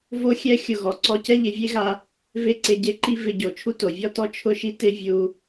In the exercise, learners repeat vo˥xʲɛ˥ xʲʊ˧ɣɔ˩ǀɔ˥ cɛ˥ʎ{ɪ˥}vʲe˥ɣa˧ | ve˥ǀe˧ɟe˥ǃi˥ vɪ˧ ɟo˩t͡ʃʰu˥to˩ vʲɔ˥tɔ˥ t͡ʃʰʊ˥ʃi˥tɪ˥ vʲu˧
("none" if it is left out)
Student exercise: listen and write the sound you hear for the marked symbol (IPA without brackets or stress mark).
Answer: ɪ˧